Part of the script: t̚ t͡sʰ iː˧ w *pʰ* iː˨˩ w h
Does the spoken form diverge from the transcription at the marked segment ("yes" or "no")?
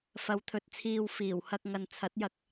yes